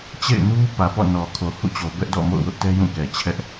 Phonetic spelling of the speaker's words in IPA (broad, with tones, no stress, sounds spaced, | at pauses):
t͡ɕ ḛ˦˨ ɪ̯ n u˦ p ä˨ p ɔ̰˦˨ n ɔ˨ kʰ o˨ h ṵ˦˨ t͡ɕ o˨ b ɛ˦ ʔ d ɔ̰˦˨ m o̰˦˨ ʊ̯ w ʊ˦ ʔ t ɛ˦ j ũ˦˨ k ɛ˨ t͡ɕʰ ɛ˦ ʔ